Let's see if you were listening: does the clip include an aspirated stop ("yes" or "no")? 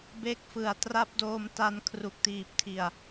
yes